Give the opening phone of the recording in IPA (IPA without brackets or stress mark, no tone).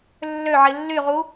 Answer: lː